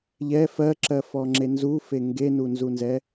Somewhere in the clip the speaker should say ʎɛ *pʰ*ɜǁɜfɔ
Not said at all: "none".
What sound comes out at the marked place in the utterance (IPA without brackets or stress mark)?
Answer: f